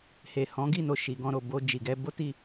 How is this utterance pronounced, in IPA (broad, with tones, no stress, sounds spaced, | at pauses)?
h e˨ h ɔ̃˨˦ ɡ i˦˨ n o˧ ʃ i˨ ɡ ɔ̃˧ ɾ o˨ b o˧ d͡ʒ i˨ ɡ ɛ˨˦ b o˦ t i˦˨